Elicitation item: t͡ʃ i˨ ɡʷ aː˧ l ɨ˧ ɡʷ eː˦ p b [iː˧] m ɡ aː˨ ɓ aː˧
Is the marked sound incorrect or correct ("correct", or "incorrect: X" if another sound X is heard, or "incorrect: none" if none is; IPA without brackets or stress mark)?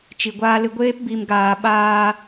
incorrect: i˧